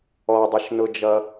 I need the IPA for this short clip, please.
ɔdˤɪʃnʊd͡ʒʌ

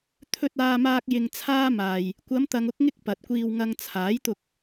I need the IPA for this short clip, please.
t̪ʰɵ˧t̚aː˧maː˧k̚ jɪ˧ŋt͡sʰaː˥maː˧j | kʷɐ˨˧mt̪ɐ˨ŋʊ˧k̚ŋɪ˧k̚ pɐ˨t̚kʷiː˧wŋɐ˧ŋ t͡sʰaː˨˥jt̪ʊ˧k̚

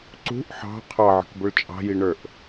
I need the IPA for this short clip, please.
ǀṳʔ ħɑ̤ qʰɑʕə̤kbʊɭ t͡ʃʼɑ̤jiɳə˞ʔ

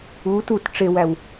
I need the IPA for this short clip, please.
u tut ʈ͡ʂewæw

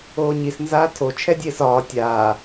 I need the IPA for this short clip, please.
oːɲis nzaːtʰo t͡ʃʰɛdʲeːsɒː tʲaː

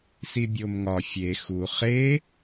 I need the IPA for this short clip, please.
sibʲomŋɒ fʲe xu χe

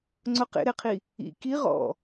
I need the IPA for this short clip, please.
ŋ͡ǀʊ qḛɾeqʰi | ḭ ki ʁɔ̰

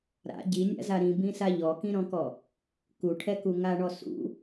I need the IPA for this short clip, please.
ɾa̰ ɟinʲa̰za ɾĩbĩsa ʎɔkĩɾɔ̃kɔ | kuʈʰɛku ŋaɳɔ sṵ

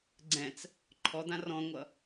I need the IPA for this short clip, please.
ɡ͡ǀɛ̃t͡s | ǃʰɔd̪ã rɔ̃ŋʷʌ

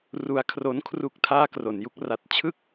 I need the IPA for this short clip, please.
ru˧a̯kʰro˦˥nkʰru˥˩k̚ tʰaː˥˩kro˨˩nju˦˥k̚ ra˨˩t̚t͡ɕʰɯ˥˩k̚

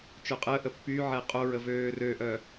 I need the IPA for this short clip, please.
t͡ʃœqʼəːʔə pːyʕɛ qʼoɹə vøːrøʔœ

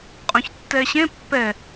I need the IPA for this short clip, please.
qʼõçtːɛɕẽ pːɛ

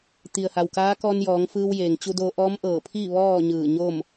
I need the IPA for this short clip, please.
t̪i˩ə̯ha˩wkaː˧˥ kɔː˧njɔː˩˧ŋ fɯː˧wjeː˩ŋt͡ɕu˧do˧ ʔɔː˧˥mʔɤː˧˩pʰi˥˨ ʋɔː˥˨ ɲɯː˧˩ɲo˥˨m

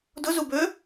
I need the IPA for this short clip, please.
dʊzubø

